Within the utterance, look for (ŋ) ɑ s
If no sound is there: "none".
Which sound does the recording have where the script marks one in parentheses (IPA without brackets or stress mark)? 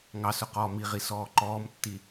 ŋ